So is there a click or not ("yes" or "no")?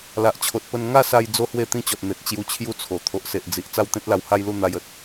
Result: no